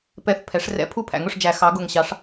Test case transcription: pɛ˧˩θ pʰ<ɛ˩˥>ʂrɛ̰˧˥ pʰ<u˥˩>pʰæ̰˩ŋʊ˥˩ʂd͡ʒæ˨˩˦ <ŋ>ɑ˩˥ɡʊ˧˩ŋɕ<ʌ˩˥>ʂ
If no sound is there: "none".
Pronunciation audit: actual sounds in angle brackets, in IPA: ɛ˩˥, u˥˩, x, ɑ˩˥

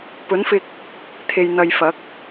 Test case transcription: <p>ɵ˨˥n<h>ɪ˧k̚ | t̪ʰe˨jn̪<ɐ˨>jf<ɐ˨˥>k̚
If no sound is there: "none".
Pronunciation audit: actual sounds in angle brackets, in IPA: p, f, ɐ˨, ɐ˨˥

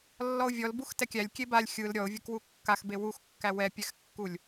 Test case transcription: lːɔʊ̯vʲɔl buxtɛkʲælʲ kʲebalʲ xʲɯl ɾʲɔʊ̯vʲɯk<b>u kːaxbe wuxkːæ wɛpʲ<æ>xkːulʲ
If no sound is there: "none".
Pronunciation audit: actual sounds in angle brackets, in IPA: w, ɛ

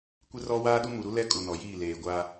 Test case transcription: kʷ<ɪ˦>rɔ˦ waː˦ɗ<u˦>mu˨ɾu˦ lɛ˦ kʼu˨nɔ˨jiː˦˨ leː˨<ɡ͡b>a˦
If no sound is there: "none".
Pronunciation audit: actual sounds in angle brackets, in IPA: ɪ˦, u˦, ɡʷ

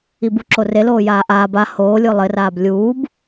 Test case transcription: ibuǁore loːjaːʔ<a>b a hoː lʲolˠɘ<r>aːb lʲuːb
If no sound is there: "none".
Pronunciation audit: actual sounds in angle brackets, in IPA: aː, r

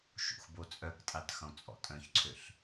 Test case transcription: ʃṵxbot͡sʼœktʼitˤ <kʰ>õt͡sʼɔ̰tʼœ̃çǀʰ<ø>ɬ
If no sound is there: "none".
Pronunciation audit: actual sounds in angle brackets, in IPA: x, ø

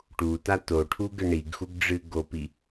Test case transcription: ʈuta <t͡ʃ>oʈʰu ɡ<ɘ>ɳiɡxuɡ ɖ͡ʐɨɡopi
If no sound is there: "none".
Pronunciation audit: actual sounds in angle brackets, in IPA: t, ɘ

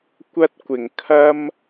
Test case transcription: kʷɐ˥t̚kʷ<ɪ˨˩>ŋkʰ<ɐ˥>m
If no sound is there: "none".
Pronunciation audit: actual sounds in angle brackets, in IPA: ɪ˨˩, ɐ˥

